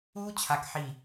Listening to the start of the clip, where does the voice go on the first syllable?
high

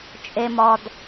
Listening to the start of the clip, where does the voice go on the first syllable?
high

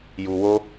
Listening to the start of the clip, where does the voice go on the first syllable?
low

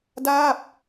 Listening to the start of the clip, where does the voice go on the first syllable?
falling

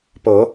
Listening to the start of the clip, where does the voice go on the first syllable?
rising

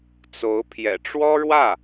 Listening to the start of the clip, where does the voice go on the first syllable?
rising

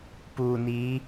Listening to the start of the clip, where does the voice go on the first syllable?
low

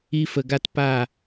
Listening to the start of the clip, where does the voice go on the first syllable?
high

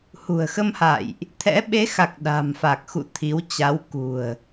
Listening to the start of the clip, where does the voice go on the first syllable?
low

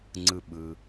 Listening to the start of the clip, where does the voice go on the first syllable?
high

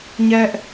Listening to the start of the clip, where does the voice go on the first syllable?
high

